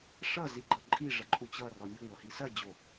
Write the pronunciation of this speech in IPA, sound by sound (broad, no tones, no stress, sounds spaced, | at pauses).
ʂ ʌ z i ɡ͡ǃ ʌ ǃʼ i ʐ ɐ ǃʼ u t͡ɕ ʌ r ɔ mʲ u ŋʷ ʌ h i s ɐ d͡ʑ o